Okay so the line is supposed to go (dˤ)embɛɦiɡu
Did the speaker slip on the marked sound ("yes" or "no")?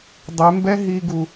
no